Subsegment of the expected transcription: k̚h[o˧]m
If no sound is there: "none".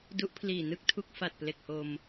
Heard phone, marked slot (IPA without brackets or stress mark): o˧